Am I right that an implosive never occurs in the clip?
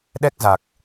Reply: no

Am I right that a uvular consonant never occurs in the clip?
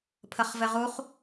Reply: no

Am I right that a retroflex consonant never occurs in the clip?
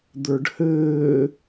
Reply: no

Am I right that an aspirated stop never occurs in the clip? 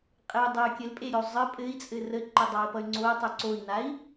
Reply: yes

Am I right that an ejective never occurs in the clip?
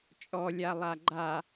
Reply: no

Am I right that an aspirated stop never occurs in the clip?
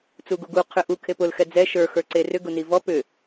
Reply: no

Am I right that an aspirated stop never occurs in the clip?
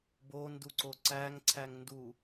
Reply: no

